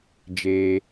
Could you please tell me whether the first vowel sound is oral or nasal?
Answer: oral